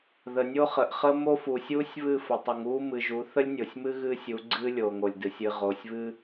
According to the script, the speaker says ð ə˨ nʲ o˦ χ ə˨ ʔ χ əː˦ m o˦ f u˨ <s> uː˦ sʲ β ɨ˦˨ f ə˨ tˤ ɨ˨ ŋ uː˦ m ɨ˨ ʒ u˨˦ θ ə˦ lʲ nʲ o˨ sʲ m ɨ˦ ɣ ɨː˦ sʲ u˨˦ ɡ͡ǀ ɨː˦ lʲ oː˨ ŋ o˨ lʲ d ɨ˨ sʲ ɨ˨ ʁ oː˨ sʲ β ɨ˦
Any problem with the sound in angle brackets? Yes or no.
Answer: yes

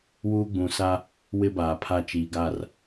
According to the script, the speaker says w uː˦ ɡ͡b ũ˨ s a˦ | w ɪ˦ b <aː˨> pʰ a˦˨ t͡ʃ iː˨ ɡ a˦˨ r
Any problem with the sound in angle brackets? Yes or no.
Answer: no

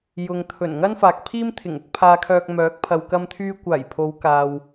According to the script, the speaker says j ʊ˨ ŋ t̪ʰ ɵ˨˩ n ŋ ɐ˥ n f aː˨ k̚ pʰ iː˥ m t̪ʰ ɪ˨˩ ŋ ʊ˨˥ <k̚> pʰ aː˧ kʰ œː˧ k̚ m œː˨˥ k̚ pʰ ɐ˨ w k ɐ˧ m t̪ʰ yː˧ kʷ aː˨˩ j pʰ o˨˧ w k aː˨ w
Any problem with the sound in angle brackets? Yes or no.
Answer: no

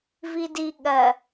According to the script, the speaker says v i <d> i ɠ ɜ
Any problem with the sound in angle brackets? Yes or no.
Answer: no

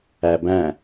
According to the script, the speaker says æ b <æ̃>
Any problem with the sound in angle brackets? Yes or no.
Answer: no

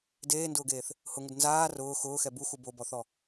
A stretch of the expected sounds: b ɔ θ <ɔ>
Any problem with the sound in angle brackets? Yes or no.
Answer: no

